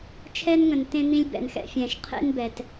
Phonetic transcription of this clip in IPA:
t͡ʃʰɛ˦nŋə̃˨n tẽ˦n̪ĩ˦lʲbɛ̰˨nxɛ̰˨ fʲɛ̃˨ʃ qʰḛ˦n bɛ˨t

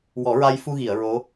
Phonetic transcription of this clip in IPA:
wɔ˨˩˦ɹa˧jfu˧ɣi˨˩˨ə̯ ɹo˧˥

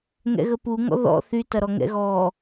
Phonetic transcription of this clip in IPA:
ŋɛ̰ɣəpuŋɔ̰ ðɔ̰ θytɐɾɔ ŋɛ̰ɣɔ

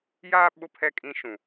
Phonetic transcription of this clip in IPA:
jaː˦ ɓʊ˦pʰɛ˦˨kʼĩ˦ ʃũ˨

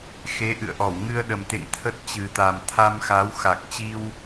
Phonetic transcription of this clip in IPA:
xe˨˦ʔɨ̰˧˨ə̯ʔɔ˧˩w ŋɨ˧ə̯ ɗə˨˩mt̪ḛ˧˨ŋ t̪ʰə˦˥t̚ t͡ɕɨ˨˩t̪a˨˩m t̪ʰa˧mxa˨˦wxa˨˩k̚t͡ɕi˧w

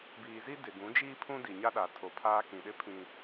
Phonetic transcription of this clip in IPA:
biː˨zi˦ dɪ˨ɡũ˨˦d͡ʒiː˦ pʰũ˦di˨ɲa˦ ɗa˨tʰo˨ pʰaː˦kĩ˨ɗɪ˦ pʰĩ˨

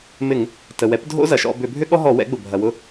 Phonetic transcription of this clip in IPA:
mɪ˧˩˧ŋ | tə˩wɛ˩˥p dʱo̰˥zɐ˩ʃɔ̰˦˨ bʏ˧˩˧bʱʏ˥ɠɔ˥ɦɔ˧˩˧ wɛ̰˩˥ɡ͡bʊ˩ bʱɐ˩wʊ˦˨

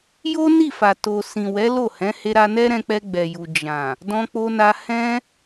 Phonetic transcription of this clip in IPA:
jo˦ ni˦˨fa˨ to˨sĩ˨ wɛ˨˦lo˦˨hɛ̃˨˦he˧ ɾa˧nɛ˦ɾɛ̃˧k͡pɛ˧ ɡ͡bɛ˨ju˨ d͡ʒã˨ | dɔ̃˧k͡po˧na˧ hɛ̃˧

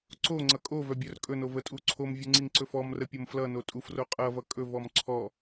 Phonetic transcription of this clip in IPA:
ǀo ŋ͡ǀʌkʼovœ bʲœrkʼɵno vətʼuǀʰomvʲu ŋ͡ǀiŋǀɵfɔmrə pʲomflʌno tʼufro qʼʌvʌ kʼɵvɔm ǀʰɔ

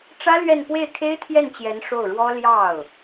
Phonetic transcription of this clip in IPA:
ʈ͡ʂä˥lɥɛ˥˧n pwe˥˩ɪ̯kʰe˥ɪ̯t̪ʰjɛ˥˩nt͡ɕjɛ˧˥n ʂo˥˩ʊ̯ɻwɔ˥ ljɑ˥˩ʊ̯

